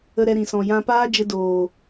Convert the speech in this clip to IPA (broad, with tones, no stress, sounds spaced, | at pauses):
ə˧ ɾ ɛ˧ ɾ ĩ˨ s ɔ̃˨ j ã˧ p aː˦ d͡ʒ ə˧ d oː˨